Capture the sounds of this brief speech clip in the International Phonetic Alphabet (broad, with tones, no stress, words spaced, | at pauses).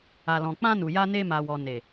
a˨lɔ̃˨k͡pã˧nu˨ ja˧ne˧ma˨wɔ˨ ne˨